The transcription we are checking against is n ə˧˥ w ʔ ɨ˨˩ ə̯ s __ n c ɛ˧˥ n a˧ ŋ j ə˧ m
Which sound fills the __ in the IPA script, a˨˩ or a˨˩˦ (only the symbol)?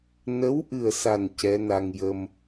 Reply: a˨˩